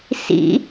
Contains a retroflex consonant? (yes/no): no